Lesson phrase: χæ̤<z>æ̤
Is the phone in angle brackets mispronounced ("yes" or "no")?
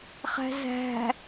no